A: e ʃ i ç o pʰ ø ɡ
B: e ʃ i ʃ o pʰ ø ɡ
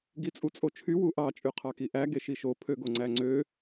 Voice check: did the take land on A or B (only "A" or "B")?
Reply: B